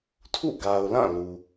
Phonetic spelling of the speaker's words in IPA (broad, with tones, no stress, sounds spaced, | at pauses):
tʰ ṵ˦˨ ɡ a˨ ʊ̯ l ã˦˨ l u˨